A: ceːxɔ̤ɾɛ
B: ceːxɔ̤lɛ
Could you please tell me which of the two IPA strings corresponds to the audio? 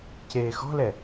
B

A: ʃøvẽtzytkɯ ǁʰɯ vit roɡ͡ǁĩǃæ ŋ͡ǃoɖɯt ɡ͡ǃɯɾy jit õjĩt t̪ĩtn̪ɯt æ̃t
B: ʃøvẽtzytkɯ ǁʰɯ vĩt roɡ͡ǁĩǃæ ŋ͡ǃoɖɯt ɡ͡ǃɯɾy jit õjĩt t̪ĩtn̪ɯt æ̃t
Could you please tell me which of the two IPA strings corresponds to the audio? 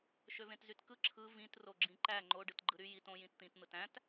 B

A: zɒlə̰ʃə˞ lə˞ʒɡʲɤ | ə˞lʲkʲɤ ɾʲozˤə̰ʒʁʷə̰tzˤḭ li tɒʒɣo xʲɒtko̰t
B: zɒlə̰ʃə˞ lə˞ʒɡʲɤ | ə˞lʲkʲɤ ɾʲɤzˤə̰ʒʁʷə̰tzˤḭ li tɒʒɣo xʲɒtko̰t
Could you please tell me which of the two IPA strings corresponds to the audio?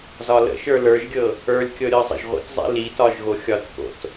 B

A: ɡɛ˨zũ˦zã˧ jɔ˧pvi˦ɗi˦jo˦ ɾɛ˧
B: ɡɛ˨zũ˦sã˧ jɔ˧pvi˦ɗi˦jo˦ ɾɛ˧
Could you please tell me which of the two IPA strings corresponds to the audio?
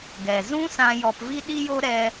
B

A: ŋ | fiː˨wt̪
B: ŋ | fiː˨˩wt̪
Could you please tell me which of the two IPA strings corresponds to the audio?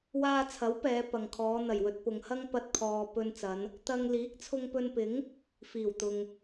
B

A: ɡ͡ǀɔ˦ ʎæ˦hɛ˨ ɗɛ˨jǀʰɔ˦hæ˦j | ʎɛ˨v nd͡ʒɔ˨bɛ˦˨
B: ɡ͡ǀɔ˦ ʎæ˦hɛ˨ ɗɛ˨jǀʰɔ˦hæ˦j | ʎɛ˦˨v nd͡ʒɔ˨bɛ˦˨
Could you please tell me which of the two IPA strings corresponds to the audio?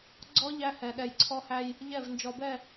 B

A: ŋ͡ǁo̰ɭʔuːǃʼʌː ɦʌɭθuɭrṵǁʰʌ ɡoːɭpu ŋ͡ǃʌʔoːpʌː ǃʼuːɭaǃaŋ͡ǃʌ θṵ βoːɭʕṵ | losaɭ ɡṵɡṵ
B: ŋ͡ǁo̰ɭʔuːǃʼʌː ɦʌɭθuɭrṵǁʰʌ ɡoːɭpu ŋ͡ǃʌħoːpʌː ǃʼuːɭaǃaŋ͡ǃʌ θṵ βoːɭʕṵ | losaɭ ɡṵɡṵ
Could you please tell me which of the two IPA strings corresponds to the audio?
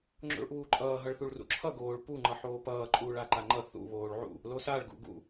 B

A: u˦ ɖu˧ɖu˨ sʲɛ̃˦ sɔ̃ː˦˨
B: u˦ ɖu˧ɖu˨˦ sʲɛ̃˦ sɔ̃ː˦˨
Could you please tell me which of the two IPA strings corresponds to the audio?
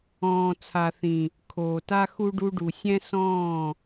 A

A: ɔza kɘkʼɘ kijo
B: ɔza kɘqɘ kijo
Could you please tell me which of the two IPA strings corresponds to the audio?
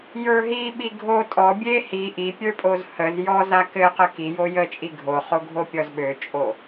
B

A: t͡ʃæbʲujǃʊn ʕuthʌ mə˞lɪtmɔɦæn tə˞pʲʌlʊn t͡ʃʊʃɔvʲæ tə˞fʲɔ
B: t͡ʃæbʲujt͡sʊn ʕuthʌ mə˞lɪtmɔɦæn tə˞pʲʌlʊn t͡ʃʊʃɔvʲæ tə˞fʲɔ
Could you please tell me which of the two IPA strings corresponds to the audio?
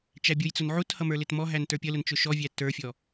B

